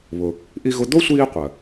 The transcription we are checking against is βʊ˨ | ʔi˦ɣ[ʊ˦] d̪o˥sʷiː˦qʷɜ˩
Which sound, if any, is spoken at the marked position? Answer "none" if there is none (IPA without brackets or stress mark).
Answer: ʊ˦